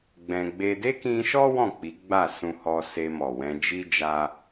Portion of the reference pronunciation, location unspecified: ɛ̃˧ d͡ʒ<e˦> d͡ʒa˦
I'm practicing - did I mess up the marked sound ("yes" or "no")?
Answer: yes